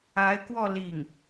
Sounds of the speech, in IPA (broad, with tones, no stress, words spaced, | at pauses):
a˧˥ɪ̯kwɔ˥˧ li˥˩ŋ